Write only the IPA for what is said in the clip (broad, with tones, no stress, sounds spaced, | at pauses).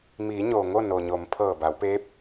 m iː˩˧ ɲ oː˩ ŋ o˥˨ n o˩ ɲ o˩˧ m pʰ ɤː˧˩ b a˩˧ w p eː˧˥ p̚